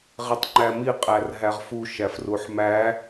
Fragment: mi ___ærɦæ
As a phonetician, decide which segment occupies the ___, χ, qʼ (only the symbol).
qʼ